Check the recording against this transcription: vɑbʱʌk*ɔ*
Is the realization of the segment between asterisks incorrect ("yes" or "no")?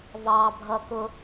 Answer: yes